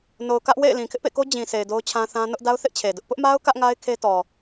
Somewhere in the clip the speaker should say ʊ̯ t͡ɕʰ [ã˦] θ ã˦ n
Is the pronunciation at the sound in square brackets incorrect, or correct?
correct